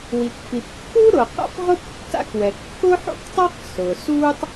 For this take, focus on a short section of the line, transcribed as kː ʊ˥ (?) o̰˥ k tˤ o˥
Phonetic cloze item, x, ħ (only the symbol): ħ